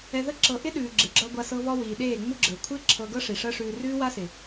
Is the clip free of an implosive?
no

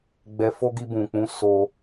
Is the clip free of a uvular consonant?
yes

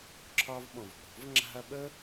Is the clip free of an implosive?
no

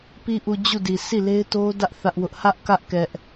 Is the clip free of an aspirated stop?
yes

